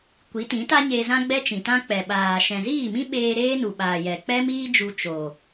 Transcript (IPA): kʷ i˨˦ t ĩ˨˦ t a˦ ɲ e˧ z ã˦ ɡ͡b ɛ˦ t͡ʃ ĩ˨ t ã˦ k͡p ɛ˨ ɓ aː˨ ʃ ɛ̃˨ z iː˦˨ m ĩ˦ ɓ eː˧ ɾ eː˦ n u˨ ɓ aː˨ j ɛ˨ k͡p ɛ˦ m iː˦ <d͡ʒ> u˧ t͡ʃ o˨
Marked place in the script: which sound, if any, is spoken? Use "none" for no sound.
d͡ʒ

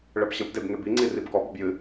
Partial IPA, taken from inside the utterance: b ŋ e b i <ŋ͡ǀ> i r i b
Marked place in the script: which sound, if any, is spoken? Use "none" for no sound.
ŋ͡ǀ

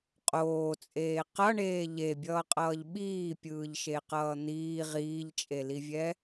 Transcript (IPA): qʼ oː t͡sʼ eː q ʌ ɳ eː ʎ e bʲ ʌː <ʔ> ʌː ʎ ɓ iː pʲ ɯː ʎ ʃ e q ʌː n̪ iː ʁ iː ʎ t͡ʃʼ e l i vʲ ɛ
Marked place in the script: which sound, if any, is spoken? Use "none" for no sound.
qʼ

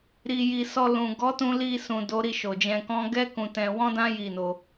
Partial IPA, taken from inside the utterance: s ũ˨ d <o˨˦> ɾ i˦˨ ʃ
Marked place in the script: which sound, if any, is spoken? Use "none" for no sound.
o˨˦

